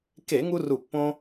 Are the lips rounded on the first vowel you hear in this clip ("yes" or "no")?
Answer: no